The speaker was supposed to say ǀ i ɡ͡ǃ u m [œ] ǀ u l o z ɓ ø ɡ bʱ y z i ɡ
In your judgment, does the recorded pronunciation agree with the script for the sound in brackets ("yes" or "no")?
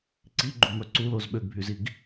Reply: yes